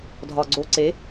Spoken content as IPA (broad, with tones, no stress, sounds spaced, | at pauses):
dʱ ɒ˨ ɡ͡ǀ o˨ ǀ e˨˦